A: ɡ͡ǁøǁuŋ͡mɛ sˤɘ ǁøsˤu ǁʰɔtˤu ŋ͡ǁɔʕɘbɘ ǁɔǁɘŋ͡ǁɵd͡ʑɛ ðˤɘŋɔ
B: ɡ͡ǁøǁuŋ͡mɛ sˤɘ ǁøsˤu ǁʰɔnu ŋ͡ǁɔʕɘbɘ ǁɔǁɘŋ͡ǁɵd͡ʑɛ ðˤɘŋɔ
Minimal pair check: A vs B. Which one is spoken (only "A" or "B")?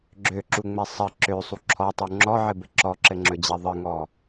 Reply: A